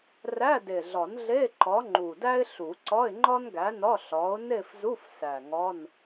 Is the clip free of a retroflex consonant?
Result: yes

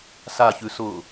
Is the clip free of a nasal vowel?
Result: yes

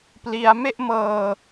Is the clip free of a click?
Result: yes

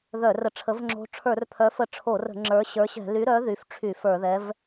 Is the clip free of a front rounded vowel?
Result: no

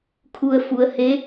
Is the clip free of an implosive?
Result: yes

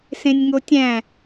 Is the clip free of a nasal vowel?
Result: no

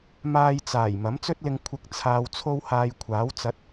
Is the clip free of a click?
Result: yes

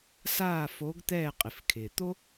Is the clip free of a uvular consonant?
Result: no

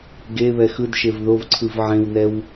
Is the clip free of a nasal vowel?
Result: no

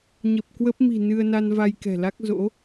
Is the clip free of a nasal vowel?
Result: yes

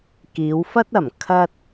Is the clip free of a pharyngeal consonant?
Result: yes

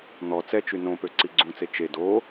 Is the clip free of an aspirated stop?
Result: yes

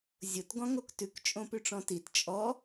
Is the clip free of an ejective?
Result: no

